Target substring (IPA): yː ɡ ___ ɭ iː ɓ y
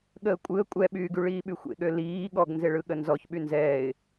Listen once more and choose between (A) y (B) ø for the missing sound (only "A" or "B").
A